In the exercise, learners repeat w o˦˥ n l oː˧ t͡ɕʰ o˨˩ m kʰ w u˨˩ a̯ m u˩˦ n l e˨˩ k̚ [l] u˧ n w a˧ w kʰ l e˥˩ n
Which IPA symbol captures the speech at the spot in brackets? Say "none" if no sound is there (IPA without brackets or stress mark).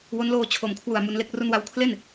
r